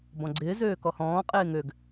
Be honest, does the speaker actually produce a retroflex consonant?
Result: no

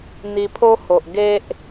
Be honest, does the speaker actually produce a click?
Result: no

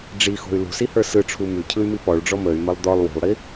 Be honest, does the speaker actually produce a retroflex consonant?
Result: yes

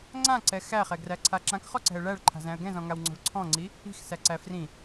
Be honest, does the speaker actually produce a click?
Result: yes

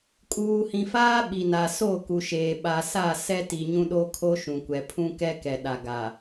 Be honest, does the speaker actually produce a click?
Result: no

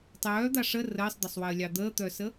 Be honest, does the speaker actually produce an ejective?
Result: no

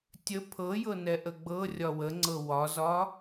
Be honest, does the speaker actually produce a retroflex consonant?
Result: no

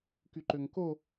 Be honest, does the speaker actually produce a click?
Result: yes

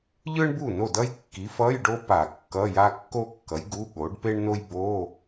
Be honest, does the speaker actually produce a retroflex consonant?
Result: yes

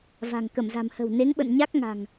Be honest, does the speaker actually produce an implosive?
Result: yes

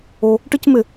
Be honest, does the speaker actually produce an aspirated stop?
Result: no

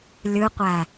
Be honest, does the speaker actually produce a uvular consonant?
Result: yes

